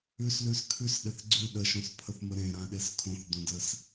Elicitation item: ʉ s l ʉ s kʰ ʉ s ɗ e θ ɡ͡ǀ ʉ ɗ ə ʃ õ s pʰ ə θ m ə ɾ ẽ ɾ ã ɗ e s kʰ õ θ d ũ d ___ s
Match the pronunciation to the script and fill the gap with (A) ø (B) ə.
B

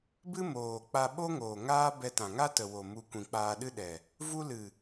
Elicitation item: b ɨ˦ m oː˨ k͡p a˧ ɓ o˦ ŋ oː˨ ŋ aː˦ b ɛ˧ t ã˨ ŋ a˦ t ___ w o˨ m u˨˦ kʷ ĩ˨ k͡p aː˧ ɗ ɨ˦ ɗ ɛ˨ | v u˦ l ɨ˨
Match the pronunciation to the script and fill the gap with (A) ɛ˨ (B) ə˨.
B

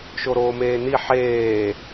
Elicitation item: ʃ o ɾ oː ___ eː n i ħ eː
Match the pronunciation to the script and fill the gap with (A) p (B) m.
B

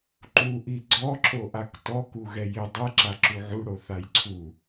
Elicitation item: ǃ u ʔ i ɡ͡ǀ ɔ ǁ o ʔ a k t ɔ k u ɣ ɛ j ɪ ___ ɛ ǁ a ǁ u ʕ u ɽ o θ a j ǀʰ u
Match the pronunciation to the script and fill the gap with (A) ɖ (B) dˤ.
B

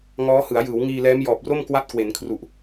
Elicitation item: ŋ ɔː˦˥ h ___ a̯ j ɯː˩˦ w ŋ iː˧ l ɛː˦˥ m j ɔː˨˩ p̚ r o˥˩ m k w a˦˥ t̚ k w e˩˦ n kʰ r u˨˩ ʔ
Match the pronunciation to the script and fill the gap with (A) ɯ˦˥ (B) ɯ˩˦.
B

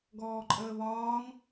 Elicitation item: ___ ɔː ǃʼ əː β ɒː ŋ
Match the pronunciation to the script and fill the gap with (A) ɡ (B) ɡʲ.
A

